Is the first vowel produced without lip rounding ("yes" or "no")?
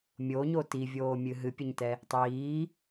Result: no